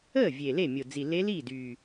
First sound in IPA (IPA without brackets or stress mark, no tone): əː